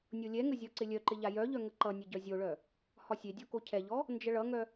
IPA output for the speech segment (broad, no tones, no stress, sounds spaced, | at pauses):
nʲ o lʲ ɛ ŋ ə zʲ ɒ ǀ ɪ lʲ œ ǃ ɪ ʎ a j œ ʎ œ ŋ ə ǃ ʌ nʲ ʌ ɟ œ zʲ o ɭ œ | h ɒ sʲ e dʲ ɔ k o cʰ ɛ ʎ ɔ | n d͡ʒ ə ɭ ʌ ŋ œ